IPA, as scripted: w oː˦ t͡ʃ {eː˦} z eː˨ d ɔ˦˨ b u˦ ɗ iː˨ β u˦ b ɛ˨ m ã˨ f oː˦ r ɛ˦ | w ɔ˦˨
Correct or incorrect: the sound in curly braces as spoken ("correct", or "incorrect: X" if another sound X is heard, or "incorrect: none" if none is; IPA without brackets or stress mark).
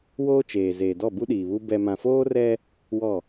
incorrect: eː˨